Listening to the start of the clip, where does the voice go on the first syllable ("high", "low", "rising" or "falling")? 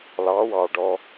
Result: rising